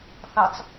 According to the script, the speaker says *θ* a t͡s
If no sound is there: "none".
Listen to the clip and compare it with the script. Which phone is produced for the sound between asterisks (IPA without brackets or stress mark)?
θ